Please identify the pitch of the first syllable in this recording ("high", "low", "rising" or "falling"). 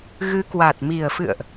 rising